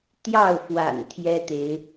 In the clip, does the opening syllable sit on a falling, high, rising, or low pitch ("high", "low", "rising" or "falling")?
falling